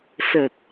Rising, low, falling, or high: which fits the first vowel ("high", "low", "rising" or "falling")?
low